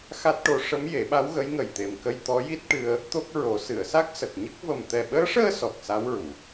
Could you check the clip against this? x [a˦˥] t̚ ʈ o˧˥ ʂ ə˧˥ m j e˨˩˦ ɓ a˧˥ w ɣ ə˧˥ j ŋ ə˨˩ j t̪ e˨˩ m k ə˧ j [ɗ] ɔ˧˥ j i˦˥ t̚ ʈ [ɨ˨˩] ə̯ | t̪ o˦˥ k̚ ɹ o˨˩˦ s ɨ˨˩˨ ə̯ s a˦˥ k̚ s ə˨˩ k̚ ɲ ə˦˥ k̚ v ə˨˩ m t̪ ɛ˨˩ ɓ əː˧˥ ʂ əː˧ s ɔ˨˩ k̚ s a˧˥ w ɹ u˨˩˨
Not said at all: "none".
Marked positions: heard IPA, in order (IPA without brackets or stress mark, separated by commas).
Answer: a˦˥, t̪, ɨ˧